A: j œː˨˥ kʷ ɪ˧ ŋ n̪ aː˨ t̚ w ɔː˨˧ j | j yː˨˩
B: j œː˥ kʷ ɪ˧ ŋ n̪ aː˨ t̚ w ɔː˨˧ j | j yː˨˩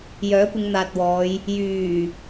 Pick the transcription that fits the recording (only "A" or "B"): A